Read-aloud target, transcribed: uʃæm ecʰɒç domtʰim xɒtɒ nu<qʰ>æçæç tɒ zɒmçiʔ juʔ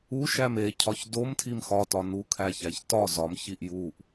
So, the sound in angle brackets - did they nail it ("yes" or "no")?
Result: no